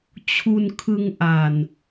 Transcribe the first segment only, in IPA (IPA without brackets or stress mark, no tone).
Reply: t͡ɕʰ